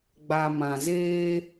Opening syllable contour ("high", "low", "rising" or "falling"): low